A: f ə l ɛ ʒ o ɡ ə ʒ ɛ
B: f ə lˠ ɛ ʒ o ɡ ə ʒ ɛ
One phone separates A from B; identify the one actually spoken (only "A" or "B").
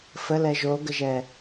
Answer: A